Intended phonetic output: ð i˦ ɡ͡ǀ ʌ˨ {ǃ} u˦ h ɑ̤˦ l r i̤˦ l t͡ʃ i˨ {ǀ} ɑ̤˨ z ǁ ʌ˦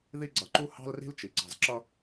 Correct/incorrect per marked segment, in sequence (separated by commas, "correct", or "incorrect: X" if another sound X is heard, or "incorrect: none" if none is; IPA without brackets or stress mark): correct, correct